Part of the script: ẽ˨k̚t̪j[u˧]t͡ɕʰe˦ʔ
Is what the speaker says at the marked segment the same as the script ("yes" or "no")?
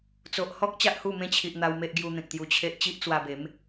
yes